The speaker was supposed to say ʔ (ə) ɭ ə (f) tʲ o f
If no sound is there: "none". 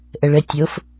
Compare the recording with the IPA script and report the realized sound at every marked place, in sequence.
ə, none

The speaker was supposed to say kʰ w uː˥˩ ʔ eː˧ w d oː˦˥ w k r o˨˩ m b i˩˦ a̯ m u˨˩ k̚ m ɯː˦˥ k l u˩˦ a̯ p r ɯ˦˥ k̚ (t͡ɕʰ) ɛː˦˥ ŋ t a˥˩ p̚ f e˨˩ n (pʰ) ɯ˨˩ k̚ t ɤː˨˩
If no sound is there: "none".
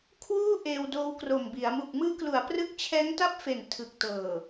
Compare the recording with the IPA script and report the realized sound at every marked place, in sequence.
t͡ɕʰ, tʰ

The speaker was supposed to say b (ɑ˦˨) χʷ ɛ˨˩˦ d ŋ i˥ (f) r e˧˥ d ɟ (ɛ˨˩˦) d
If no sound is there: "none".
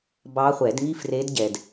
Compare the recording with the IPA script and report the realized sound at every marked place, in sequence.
ɑ˧˥, f, ɛ˨

